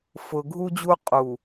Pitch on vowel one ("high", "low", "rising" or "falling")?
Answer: low